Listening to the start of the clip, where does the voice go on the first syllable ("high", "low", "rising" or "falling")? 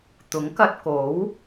rising